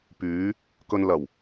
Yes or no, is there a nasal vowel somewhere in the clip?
no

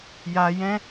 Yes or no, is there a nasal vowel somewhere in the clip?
yes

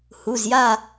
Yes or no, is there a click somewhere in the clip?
no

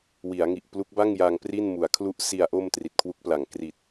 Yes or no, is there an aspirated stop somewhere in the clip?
yes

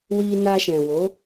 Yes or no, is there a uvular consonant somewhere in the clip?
no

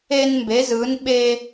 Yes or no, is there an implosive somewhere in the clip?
yes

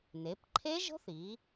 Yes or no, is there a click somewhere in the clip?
yes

